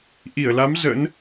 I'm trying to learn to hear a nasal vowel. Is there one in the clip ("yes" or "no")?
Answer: no